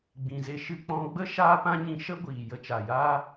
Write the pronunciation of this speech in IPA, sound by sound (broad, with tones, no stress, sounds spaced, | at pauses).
ɡ͡b ĩ˨ z e˧ ʃ ɨ˧ k͡p ɔ̃˧ ɡ͡b ə˦ ʃ aː˦ p ã˦ ɲ ĩ˧ ʃ ə˦ ɡʷ iː˨ j ə˧ t͡ʃ a˨ j aː˦